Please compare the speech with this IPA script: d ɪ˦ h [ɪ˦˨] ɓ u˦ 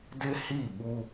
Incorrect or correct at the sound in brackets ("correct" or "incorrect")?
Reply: incorrect